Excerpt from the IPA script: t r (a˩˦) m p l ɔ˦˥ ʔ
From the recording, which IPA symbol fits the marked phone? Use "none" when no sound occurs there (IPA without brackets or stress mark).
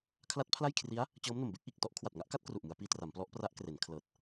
a˩˦